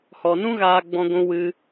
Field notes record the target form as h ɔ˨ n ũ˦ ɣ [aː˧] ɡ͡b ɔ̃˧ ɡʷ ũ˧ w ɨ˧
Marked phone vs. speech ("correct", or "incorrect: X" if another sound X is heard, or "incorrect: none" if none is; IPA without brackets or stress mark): correct